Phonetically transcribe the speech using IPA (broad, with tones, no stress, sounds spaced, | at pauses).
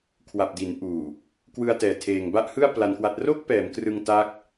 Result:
kʰ w a˨˩ p̚ d i˩˦ n ʔ uː˨˩ | k w ɯ˧ a̯ t ɛː˨˩ tʰ eː˨˩ ŋ b a˥˩ ʔ h ɯ˥˩ a̯ p l a˧ n k w a˦˥ t̚ r o˥˩ k̚ p ɛː˩˦ m k r ɯ˧ ŋ t a˦˥ k̚